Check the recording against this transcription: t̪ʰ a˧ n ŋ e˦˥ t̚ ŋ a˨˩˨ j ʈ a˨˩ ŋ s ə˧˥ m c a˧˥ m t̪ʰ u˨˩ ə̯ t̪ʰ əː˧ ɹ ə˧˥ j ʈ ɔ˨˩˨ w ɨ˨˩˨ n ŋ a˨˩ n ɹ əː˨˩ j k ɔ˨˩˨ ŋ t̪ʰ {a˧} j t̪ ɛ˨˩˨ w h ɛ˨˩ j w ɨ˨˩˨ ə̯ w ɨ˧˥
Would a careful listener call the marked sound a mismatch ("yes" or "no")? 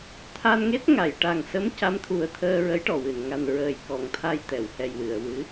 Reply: no